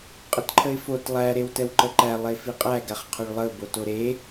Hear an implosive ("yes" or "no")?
no